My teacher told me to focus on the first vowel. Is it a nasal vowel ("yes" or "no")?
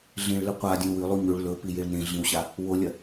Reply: yes